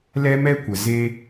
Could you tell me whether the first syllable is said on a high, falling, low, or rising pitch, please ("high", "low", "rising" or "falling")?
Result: high